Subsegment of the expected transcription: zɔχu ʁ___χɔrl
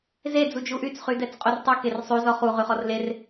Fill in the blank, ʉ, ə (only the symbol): ʉ